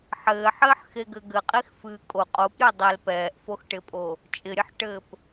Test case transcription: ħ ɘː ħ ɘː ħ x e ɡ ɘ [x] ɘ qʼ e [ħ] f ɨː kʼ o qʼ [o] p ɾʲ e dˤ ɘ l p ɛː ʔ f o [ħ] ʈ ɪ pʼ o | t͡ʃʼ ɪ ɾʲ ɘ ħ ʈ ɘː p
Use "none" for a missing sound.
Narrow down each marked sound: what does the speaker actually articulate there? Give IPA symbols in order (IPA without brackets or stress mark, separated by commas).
ɡ, x, o, x